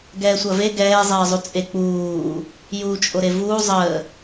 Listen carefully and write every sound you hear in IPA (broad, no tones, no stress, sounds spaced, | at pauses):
ɡ ɛː sʷ ɐ v e ɡ ɛː zˤ eː zˤ u t͡sʼ e k͡p uː | j uː t͡ʃʼ o ɾ e v uː zˤ əː